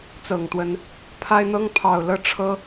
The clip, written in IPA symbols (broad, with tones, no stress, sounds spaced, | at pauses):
t͡s ɤ˨˩ ŋ t̪ w ə˨˦ n | pʰ a˦ ɪ̯ n̪ ɤ˦ ŋ pʰ ɑ˨˩ ʊ̯ l ɤ˦ ʈ͡ʂʰ ɤ˦